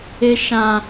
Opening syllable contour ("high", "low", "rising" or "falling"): high